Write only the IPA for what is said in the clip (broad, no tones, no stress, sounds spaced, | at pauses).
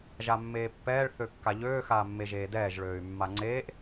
ʒ a mː eː pː ɛː ɭ θ ø kː a ʎ øː x aː mː e ʒ eː d ɛː ʒ ɭ øː y̯ mː a ŋ͡ǀ eː ʔ